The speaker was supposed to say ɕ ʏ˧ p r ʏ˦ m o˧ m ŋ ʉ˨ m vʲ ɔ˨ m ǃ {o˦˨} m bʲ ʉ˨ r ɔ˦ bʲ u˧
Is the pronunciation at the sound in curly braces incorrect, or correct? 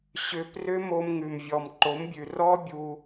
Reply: incorrect: o˨˦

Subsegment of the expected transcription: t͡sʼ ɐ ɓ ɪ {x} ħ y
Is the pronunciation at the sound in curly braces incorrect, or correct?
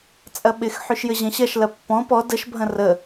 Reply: correct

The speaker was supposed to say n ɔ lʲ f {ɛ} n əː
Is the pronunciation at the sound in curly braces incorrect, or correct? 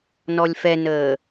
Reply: correct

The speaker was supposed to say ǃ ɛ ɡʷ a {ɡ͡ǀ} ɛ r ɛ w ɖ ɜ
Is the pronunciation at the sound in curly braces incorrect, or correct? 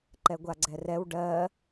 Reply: correct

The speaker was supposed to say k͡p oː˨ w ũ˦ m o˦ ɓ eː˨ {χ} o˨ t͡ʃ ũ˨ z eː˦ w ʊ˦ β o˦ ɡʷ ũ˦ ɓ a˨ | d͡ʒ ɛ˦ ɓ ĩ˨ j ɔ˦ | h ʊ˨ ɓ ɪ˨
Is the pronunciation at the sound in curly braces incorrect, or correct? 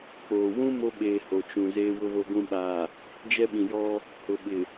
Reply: incorrect: h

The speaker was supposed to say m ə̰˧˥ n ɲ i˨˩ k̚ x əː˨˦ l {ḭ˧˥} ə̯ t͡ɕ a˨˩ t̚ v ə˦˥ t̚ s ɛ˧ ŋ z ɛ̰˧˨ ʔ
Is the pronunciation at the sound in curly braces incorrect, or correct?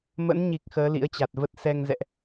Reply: correct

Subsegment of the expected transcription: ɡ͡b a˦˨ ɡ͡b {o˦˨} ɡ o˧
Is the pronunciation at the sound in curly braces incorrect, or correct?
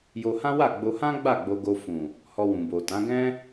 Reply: incorrect: o˧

